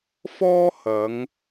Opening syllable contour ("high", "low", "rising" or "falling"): high